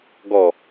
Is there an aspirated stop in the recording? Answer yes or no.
no